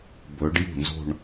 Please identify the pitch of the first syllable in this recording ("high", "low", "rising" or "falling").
rising